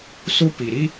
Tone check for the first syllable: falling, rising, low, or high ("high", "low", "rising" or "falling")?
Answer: high